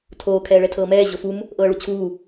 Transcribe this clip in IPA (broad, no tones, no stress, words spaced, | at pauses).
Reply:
tʰoː kʰɛːɭɛtʰɤːmɛː ʑofum | ʔɤːɭut͡ɕʰuː